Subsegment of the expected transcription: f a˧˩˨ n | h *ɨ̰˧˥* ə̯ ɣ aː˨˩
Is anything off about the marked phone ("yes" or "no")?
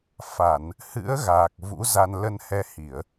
no